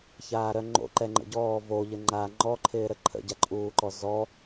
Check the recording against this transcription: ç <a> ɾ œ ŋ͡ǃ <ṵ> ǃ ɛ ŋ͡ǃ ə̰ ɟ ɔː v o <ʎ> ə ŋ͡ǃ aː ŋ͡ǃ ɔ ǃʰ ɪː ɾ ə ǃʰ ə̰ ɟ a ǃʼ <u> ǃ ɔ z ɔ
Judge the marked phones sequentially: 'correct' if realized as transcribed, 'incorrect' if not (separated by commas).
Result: incorrect, incorrect, correct, incorrect